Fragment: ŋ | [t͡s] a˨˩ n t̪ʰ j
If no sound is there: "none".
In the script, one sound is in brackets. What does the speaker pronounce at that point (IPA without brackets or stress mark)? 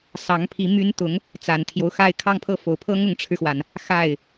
t͡s